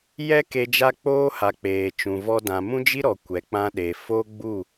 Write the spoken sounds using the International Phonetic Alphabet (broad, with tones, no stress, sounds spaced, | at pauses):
j ɛ˦ k e˧ d͡ʒ a˧ k͡p oː˧ h a˨ k͡p eː˨ t͡ʃ ũ˨ v ɔ˧ d ã˨ m ũ˦ d͡ʒ i˦ ɾ ɔ˨ kʷ ɛ˨ k͡p ã˧ ɗ e˨ f o˦ ɡ͡b u˦˨